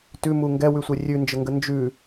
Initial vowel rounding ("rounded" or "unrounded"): rounded